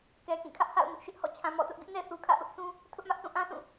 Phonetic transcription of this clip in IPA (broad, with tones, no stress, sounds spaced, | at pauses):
k ɛ˨ k ĩ˦˨ kʰ ä˦ ʔ h a̰˦˨ ʊ̯ m ɪ˦ ʔ ʃ ɪ˦ ʔ h ɔ̰˦˨ t͡ɕʰ ã˨ m ɔ̰˦˨ t ʊ˦ ʔ ɡ ɪ˦ ʔ n ɛ˨ θ u˨ kʰ ä̰˦˨ ʔ ʊ˦ ʔ s ũ˦ | tʰ ʊ˦ ʔ m ä˦ ʔ s ũ˦˨ ʔ ã˦ sʰ ũ˦˨